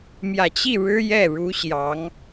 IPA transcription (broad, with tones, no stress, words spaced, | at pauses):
mjä˨˩t͡ɕi˥˩ ɻɻ̩˥ jɛ˥˩ɻu˧˥ ɕjɑ˧˥ŋ